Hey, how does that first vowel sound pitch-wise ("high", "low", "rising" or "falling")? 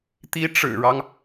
rising